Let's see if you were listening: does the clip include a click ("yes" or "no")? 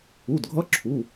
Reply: yes